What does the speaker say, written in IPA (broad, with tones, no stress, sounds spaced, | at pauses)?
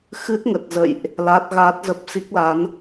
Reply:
x ɨ˦˥ t̚ ŋ ə˨˩ t̚ z ə̰˧˨ j ʔ | l a˦˥ t̚ ɣ aː˦˥ t̚ z ə˦˥ p̚ s i˦˥ k̚ l a˨˦ n